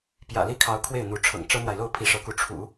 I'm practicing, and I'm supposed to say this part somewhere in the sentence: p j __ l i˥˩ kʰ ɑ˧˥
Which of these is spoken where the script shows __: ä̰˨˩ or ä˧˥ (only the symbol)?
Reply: ä̰˨˩